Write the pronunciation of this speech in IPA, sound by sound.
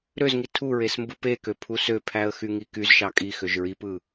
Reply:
ɾ ø z ŋ i tʰ u ɹ e s m b ɯ p e k ø pʰ u s ø pʰ æ ə̯ x y ŋ i k y z ʃ ɑ kʼ i x ø ʒ ɹ i p ɯ

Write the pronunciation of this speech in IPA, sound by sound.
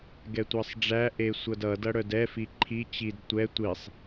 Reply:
ɡ ɛ tʷ æ sˤ ɖ͡ʐ æ ʔ e sʷ ʌ d ʌ d ʌ ɽ œ d ɛ f i ǃʰ i t͡ɕ i d tʷ ɛ tʷ i sˤ

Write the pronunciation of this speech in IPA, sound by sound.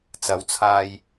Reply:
t͡s ɐ˨˥ w t͡sʰ aː˧ j

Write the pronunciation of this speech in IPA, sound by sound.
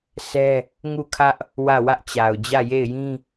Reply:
s ɛ˦ | ŋ u˦˨ kʰ ä˦ ʔ | w ä˦˨ w ä˦ ʔ t͡ɕ a˨ ʊ̯ d͡ʑ ä˦˨ j e˦˨ ɪ̯ j ĩ˦

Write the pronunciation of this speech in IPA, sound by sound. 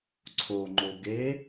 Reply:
ǀʰ o ŋ͡ǃ o ɡ e

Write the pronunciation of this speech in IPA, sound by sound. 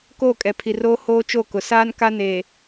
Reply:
k oː˦˨ kʼ ɛ˨ pʰ i˨ r oː˦ h oː˦ t͡ʃ o˦˨ k ʊ˨ s aː˦ n k a˦ n eː˨

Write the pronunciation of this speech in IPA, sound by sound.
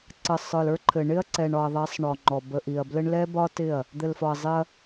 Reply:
ǀ ə˨ sˤ ə˞˨ l ə˞˦ ǃʰ ɘ˨ ɳ ɪ˦ ɐ̯ ǀ ɛ˨ ɳ ɒ˨ ɐ̯ ðˤ ɛ˨˦ sˤ ɳ ɔ˨ ŋ͡ǃ ɔ˨ b ə˨ ʔ i˨ ɐ̯ b l ɘ˦ ɳ l ɛ˦ b ɒ˦ t ɪ˦˨ ɐ̯ | d̪ ɘ˨ l f ɒ˨ ɐ̯ zˤ ɪ˦ ɐ̯

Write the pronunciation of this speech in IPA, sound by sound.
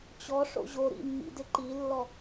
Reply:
t͡ɕ ɔ ʂ o̰ ʑ o ɾ ḭ mː ḭ d ɪ ǃ i lː ɔ

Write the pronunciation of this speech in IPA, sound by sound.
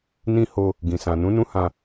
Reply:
n ĩ˦ h o˧ | ɡ ĩ˨ s ã˨ n ũ˨˦ n ũ˦ h ã˧

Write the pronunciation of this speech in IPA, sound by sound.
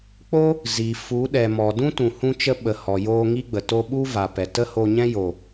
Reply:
k͡p o˦ | z i˨ f u˨˦ ɗ ɛ˨ m ɔ˨ d ũ˦ t ũ˨ h ũ˦ t͡ʃ ə˦ ɓ ə˨ h ɔ˨ j oː˧ ŋ i˦ ɡ͡b ə˨ t o˧ ɓ u˦ v a˨ p ɛ˨ t ə˦ h o˧ ɲ ɛ̃˦ j o˨

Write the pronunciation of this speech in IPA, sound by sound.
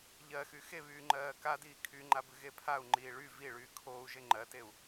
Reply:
ʎ ɜ x y x e β yː ŋ͡ǃ ɜː k a d iː kʰ y ŋ͡ǃ a b ɨ ɣ e pʰ a u̯ ŋ͡ǃ iː ɭ y v i ɭ yː kʰ oː u̯ ʒ e ŋ͡ǃ ɜ t e u̯

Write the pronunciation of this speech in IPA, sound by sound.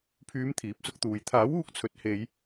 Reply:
pʰ yː˨˧ m t̪ʰ iː˨˥ p̚ s ʊ˧ k̚ t̪ uː˨ j t̪ʰ aː˨˥ w uː˧ k̚ t͡sʰ ɵ˨˥ t̚ h e˨˧ j

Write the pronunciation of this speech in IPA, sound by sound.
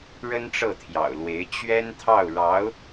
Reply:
ɻ ə˥ n ʈ͡ʂ ɤ˥˩ t̪ʰ j ɑ̰˨˩ ʊ̯ l w e˧˥ ɪ̯ t͡ɕ ɥ ɛ˥ n t̪ʰ ɑ˥˩ ʊ̯ ɻ ɑ˧˥ ʊ̯

